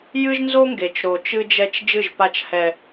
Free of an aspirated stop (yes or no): yes